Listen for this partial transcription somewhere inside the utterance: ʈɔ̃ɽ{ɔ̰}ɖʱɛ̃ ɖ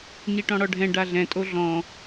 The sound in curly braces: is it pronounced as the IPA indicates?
no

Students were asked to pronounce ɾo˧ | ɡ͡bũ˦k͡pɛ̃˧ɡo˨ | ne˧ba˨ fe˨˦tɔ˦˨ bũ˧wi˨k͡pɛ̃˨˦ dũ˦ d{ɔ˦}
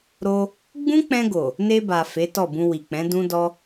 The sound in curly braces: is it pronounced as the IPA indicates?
yes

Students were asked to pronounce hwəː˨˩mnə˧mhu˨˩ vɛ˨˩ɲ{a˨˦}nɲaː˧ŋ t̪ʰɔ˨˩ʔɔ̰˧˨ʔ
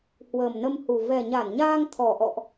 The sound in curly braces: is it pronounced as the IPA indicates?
no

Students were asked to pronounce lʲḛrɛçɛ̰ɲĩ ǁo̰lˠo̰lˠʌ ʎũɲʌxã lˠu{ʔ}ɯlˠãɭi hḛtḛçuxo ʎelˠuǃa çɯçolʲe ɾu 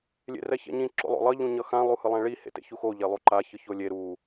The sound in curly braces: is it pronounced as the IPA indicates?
no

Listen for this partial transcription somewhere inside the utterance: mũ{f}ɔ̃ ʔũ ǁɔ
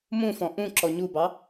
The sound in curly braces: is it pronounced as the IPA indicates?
yes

